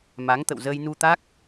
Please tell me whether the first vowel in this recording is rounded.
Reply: no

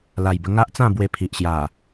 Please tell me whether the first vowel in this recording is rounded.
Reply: no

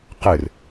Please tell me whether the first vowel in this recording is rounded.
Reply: no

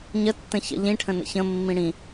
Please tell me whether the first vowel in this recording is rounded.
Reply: no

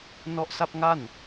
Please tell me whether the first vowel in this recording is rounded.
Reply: yes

